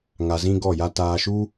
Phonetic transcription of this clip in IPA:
ŋa˧zĩ˦ɡɔ˦˨ja˦ taː˧ʃu˦

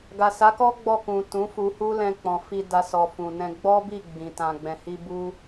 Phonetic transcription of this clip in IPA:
ɡa˨sa˨˦kɔ˦ ɡ͡bɔ˦˨kũ˨ tũ˨˦fu˧hu˦ lɛ̃˧k͡pɔ̃˨fi˧ da˧sɔ˨fũ˨nɛ̃˧ ɡ͡bɔ˦bi˦˨ ɡ͡bĩ˨tã˨ɡ͡bɛ̃˨hi˧ bu˧

